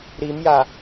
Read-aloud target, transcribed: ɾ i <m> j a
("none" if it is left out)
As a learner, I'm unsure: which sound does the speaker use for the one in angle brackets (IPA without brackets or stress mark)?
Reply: m